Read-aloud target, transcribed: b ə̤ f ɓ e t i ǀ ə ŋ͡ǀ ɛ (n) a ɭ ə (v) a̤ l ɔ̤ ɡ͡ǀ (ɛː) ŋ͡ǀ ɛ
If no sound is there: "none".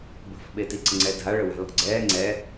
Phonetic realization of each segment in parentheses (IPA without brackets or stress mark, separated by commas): dʱ, w, ɛː